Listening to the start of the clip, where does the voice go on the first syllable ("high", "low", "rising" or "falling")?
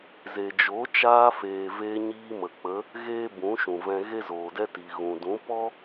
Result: low